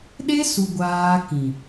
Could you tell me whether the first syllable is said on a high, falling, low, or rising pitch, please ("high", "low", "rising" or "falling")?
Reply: high